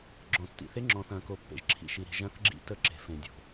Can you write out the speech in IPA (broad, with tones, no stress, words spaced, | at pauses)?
ɡ͡ǁɔ̃˨tːḭ˨θe˦ ŋ͡ǁɔ̃ː˨θɐ̃ː˨ko˨pːḛ˨ʒ ǁʰḭ˨ ʃi˨ɾi̤˨ ʒɐ̃˦θɡ͡ǁḭ˦ tə˦˨ ǁe̤˨fẽ˨ dʲo̤˨